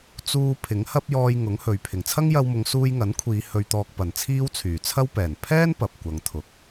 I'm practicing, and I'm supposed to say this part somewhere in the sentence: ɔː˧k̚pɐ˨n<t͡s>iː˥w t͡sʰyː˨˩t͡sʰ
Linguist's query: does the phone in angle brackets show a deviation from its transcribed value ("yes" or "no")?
yes